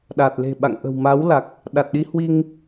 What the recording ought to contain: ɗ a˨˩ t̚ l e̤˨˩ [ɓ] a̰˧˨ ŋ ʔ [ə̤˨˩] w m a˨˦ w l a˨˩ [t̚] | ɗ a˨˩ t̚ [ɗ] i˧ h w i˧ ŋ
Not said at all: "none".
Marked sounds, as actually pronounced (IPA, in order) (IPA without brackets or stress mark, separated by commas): ɓ, ə̤˨˩, k̚, ɗ